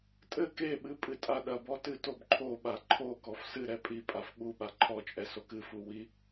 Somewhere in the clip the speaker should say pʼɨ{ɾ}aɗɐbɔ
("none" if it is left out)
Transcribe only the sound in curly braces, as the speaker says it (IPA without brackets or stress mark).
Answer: tʼ